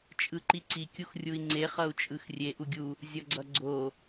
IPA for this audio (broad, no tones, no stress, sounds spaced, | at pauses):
t͡ʃʼ ɯ ǃ i ǀ i kʲ u x rʲ u i̯ ŋ͡ǀ e χ ʌ u̯ t͡ʃʼ ɯ x rʲ e ʔ u ɡʲ u | zʲ ʌ ɡ͡ǀ ʌ ɡ͡ǀ o